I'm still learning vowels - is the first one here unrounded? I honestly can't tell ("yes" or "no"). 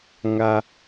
yes